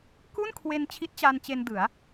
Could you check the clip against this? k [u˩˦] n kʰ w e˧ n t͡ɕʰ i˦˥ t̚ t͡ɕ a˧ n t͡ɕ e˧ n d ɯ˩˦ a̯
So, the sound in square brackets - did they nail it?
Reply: no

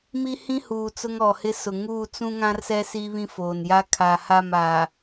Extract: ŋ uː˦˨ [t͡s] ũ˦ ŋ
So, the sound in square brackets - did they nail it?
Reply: yes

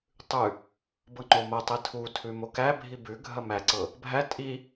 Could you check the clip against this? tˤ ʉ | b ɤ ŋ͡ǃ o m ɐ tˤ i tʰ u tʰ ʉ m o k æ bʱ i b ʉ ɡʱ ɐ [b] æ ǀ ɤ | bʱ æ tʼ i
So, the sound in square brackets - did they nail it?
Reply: no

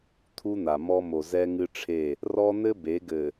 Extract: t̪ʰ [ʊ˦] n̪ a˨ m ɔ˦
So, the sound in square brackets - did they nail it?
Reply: no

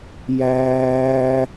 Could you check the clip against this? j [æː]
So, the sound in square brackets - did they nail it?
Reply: yes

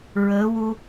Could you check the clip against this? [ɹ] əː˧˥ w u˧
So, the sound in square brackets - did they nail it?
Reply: yes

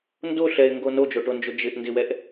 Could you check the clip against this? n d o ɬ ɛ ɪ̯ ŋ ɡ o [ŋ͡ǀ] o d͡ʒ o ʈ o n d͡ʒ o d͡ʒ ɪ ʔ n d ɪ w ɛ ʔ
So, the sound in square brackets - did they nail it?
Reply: no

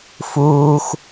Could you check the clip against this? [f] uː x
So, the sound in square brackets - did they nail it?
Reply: yes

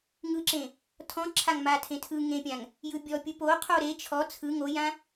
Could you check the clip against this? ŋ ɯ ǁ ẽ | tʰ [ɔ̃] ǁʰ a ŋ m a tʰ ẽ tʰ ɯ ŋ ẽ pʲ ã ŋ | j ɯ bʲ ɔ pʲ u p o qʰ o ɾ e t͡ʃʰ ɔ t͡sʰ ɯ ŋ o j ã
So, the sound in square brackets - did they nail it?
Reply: yes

